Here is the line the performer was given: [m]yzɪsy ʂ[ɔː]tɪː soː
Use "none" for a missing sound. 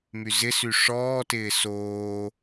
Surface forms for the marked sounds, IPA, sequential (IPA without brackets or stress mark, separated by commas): m, ɔː